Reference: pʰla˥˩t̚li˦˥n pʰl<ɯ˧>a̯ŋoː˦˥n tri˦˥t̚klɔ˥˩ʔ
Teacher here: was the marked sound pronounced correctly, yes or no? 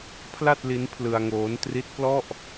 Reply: yes